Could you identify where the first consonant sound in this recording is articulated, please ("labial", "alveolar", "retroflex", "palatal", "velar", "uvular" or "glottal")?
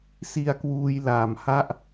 alveolar